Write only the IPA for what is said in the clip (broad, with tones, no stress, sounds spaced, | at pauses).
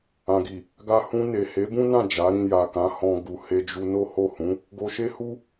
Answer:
ã˨ ɡ i˨ | ɡ a˧ h ũ˧ n e˨ h e˨˦ b ũ˦ n ã˦˨ d͡ʒ a˨˦ ɾ ĩ˧ j a˨ k ã˨˦ h ɔ̃˧ ɡ u˨ h e˧ d͡ʒ u˧ n o˦ h o˦˨ h ũ˨˦ | ɡ o˧ ʃ e˦ h u˦